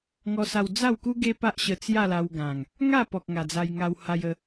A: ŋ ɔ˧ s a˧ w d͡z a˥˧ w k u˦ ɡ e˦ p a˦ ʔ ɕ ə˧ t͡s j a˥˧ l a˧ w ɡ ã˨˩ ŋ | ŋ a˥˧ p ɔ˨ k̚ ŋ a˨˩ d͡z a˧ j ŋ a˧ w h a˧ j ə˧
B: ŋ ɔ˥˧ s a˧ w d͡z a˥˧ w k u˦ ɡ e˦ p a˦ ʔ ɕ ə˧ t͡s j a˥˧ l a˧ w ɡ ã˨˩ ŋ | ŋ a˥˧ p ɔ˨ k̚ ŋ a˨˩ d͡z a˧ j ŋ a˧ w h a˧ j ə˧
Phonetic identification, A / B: A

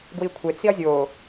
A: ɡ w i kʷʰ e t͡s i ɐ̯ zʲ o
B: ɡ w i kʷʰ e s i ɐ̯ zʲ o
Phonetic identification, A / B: A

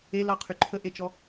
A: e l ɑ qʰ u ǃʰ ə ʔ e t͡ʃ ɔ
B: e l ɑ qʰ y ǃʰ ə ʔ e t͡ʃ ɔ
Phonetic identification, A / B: B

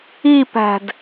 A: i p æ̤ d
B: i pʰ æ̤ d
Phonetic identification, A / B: A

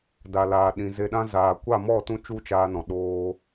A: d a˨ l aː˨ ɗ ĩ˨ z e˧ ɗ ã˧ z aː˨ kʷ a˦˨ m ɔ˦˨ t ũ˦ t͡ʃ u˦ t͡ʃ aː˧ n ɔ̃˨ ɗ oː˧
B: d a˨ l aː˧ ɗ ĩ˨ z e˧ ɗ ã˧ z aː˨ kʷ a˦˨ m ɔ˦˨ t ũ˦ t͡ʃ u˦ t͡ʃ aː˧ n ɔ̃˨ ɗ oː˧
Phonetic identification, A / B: A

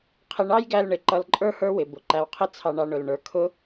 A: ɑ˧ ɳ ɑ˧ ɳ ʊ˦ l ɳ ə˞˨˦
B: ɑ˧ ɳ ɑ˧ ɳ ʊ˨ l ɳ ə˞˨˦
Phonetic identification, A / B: B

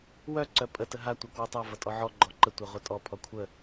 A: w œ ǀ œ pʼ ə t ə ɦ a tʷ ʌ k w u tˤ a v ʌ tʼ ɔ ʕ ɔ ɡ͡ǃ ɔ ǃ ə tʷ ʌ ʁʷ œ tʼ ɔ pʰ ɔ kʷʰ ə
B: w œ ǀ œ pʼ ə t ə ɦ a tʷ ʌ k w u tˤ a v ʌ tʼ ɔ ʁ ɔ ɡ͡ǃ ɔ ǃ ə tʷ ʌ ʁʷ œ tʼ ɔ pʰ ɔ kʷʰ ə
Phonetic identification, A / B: A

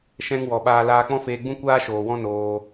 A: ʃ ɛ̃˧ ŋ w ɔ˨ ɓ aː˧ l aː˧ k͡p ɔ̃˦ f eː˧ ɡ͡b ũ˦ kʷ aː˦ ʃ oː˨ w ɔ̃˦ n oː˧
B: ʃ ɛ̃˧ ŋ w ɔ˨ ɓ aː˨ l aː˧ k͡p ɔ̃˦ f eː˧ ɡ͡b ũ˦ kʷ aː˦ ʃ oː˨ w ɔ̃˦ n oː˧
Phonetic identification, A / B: A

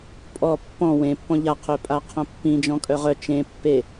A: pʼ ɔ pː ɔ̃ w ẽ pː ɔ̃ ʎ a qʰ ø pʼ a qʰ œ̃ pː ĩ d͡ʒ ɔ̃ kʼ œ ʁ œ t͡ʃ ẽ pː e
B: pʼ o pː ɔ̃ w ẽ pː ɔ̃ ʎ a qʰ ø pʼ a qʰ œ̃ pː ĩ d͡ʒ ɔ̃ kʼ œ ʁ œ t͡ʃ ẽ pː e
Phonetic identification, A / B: A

